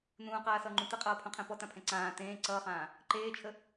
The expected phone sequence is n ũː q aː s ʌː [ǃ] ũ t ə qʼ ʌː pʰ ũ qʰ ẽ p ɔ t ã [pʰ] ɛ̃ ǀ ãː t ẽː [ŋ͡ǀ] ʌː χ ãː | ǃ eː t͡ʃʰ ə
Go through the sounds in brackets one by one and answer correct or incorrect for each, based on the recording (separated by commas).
incorrect, correct, incorrect